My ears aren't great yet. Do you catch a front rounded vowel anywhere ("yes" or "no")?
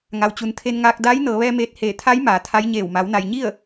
no